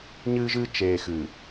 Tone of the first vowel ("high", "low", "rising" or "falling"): high